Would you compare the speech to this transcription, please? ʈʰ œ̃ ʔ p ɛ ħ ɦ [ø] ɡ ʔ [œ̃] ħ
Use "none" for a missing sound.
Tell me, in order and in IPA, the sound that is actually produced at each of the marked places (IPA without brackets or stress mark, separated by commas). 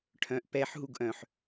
u, œ̃